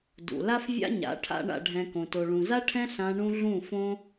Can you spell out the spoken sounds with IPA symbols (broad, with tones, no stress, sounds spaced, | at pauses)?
d ṵ˨ l a˦ f vʲ a̰˦ ɲ a̰˨˦ ʈʰ a̰˧ ɳ a̰˨ ɖʱ ɛ̃˨ k õ˨ t o˨ ɭ ũ˨ z a˦ ʈʰ ɛ̃˦ ɬ ã˧ ɳ ũ˦ ɮ ũ˦˨ f õ˦